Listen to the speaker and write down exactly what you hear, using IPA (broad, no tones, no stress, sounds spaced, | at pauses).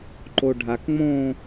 ǃ o ɖʱ a k ŋ͡m õ